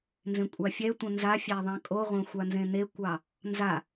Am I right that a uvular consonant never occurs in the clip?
no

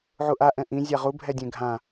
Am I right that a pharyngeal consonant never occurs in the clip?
no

